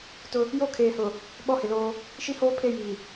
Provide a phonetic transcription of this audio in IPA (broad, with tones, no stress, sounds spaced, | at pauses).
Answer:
t ʊ˦ | j o˦ kʰ eː˨ h ʊ˨ | ɓ ɔ˦ h ɪ˨ l oː˦ | ʃ i˦ h oː˦ pʰ e˦˨ j iː˨